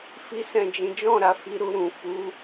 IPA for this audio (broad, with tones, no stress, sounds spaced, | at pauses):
f i˦ s ɛ̃˦˨ d͡ʒ ĩ˨˦ d͡ʒ ɔ̃˦˨ ɾ a˨ f i˨˦ ɾ u˧ ɾ ũ˨ f u˨˦